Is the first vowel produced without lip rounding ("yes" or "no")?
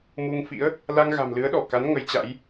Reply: no